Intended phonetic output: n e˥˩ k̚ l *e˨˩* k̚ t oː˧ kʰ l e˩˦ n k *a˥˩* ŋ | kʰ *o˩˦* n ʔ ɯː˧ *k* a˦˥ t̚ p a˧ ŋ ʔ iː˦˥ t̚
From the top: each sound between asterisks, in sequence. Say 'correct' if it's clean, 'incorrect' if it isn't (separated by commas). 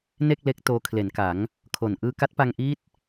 incorrect, incorrect, incorrect, correct